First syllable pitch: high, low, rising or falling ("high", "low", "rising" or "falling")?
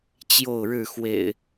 falling